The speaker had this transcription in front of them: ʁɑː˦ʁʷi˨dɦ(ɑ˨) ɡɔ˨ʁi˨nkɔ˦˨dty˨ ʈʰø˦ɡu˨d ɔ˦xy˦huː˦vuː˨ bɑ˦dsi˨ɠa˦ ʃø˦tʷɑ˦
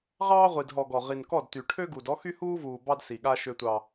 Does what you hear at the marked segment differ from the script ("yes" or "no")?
yes